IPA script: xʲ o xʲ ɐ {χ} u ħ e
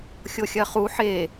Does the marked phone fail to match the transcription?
no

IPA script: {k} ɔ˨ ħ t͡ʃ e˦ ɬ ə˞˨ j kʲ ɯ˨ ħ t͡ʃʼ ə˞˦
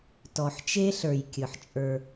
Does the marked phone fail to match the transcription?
yes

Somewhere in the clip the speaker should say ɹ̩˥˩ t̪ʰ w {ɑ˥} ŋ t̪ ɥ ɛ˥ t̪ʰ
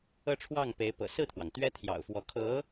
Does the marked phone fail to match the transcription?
yes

